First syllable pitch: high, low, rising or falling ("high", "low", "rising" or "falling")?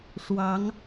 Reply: rising